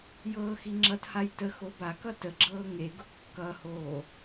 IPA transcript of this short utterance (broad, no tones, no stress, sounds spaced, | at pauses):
j ɤː x i ŋ͡ǁ ʌ t h a j t ə x o b a k ʌ t ə ɡ͡ǁ ɤː ŋ e ɡ ʊ kː ʌ h oː